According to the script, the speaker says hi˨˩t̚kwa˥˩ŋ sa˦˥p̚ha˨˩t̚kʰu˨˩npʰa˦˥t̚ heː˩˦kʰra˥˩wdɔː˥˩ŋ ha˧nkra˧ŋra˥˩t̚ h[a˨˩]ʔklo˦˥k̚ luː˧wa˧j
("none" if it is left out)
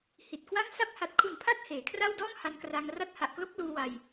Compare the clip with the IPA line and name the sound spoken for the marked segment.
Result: a˨˩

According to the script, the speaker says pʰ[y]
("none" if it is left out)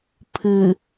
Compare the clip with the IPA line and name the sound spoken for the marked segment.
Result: ɨ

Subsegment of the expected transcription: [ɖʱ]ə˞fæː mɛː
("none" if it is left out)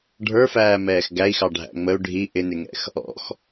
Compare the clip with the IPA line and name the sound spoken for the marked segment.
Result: ɖʱ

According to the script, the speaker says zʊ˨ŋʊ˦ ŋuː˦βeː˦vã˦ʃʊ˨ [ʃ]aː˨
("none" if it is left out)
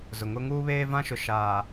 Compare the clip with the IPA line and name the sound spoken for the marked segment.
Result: ʃ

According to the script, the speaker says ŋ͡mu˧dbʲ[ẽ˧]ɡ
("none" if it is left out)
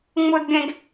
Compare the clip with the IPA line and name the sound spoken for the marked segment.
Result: ẽ˧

